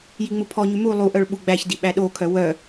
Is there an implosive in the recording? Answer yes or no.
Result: yes